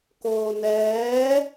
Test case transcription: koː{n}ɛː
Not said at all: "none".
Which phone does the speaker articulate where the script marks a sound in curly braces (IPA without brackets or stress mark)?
n